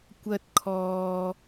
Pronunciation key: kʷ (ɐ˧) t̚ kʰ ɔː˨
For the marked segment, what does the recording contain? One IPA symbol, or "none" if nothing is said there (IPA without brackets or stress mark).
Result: ɐ˧